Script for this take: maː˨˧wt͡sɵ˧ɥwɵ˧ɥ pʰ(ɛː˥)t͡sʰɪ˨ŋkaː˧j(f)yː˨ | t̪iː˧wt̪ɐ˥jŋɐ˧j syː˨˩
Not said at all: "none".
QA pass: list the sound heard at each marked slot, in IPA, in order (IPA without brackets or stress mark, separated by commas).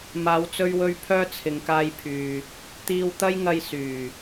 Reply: œː˥, pʰ